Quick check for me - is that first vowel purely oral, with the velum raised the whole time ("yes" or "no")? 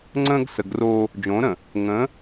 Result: no